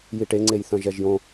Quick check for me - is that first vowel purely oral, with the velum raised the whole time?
yes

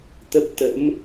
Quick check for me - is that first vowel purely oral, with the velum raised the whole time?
yes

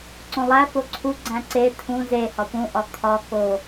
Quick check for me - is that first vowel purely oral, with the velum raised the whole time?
no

